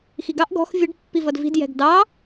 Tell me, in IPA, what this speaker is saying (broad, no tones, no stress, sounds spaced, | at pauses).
x i ɡ ɑ ʔ ɡ ɔ̤ x vʲ ə ɖ pː i v ʌ d v i̤ d j ɛ̤ ɡ d ɑ